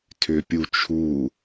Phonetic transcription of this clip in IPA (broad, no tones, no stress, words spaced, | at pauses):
tʰʏpʲut͡ʃʰu